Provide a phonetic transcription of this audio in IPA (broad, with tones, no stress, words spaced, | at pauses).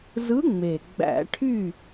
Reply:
zɯ˧˥ŋ͡me˨˩ ɡ͡bæ̰˧˩˧ʈʰy˥˨